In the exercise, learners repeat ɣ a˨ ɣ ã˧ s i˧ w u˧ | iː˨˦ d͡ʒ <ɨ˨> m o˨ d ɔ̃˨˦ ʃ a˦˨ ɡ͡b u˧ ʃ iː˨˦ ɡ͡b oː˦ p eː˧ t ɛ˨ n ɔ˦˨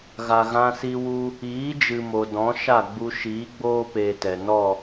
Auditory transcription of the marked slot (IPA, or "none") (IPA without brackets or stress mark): ɨ˨